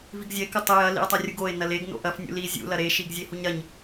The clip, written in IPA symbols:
viɡzʲɐe̯ kɨtˤe jɐ lḭe̯tˤɐrʲuɡoe̯ nɐleɡ no̰ʔɐf nʲṵli zʲṵ lɐɾe ʃiɡzʲehuɲɾɐɲ

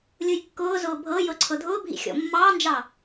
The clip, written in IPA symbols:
lʲʊjkːʊːzʊː bʱɤjɤ ǀʰɤdʱʊːbʱḭ xʲɔ̰mːɑːnd͡ʒɑ

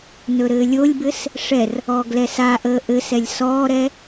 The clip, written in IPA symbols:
nɵɾɘːlʲolʲbɘs | ʂɛr | ɔːɡlɛsaʔəː ʔɘsɛlʲ sɔːɾɛ

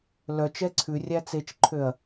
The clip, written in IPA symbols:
lœt͡ʃɛ ǀʰʉrʲæ t͡set͡ʃǃʰøɐ̯

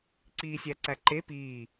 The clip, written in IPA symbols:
ǀiːsʲæǀæǃe piː

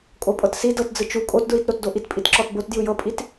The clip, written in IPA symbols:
kʼopʼɤtsi dɤtd͡zɯ t͡ʃu kʼotdɹitɾotdo ʔitpʼitǁɔtbot djɯjɤpʼit

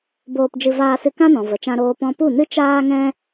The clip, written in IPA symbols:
boː˧pd͡ʒɨ˧ vaː˧sɨ˧kã˦nɔ̃˨ və˨t͡ʃã˧ɾoː˧ pɔ̃˧pu˦˨nɨ˦ t͡ʃaː˦ŋɛ̃˦

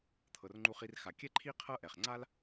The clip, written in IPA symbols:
t̪ʰɤ˩rŋ͡ǃu˨χi˨rxa˩ kʲɛ˦ǃʰi˦ qʰɤ˦ʔɛ˩χŋ͡ǀa˦l

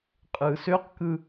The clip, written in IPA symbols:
qʼɯːsøqkɯ

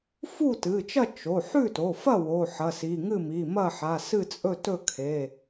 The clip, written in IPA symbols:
fu˥˨tɨ˩˧˩t͡ʃɐ˥˨ t͡ʃo˩˧˩ ħʉ˥˨to˩˧˩fɐ˥˨ wo˩˧˩ħɐ˩˧˩si˩˧˩ ŋɨ˥˨mi˩˧˩mɐ˥˨ ħa˩˧˩sɨ˥˨t͡sʼɵ˥˨ tɵ˥˨kʰe˩˧˩

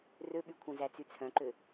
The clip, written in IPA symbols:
røɓykʷʰœ̃zæ t͡syt͡sʰœ̃ǃø

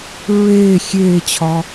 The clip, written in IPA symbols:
ɹeː xʲeːt͡ɕʰɒ

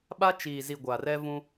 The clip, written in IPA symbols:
ɓa˦t͡ʃiː˨zi˨ ɡʷaː˨rɛ˦vũ˦

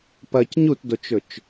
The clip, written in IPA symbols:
pɐc ɲutdot͡ʃɵt͡ʃ

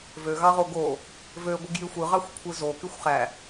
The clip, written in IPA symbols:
vøɣɑʁo ɡo | vø ɡʷɯɡjyxʷɯʁɑxʷ kʷʰɯzo kyxʷχæ

